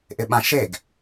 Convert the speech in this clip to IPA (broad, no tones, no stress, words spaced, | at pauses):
ʔɪɓãʃeɡ